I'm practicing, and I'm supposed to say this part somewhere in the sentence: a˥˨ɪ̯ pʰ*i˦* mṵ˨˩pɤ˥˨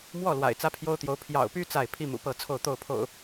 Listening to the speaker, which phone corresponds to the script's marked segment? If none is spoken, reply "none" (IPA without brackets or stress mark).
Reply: i˦